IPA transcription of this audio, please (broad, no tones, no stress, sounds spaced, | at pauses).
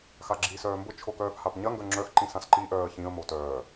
x a ɡ͡ǁ iː s œː m b ʊ t͡ʃʰ o k œː f h a p ɲ ɐ ŋ ɡ œ ŋ͡ǁ œ x ǃ ĩ s ã s ǃ i ʔ œː ə̯ ç ĩ ə̯ m o t œː